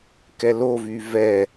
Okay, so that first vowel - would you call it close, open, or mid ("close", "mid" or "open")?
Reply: mid